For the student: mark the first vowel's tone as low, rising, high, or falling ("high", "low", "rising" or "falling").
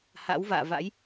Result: rising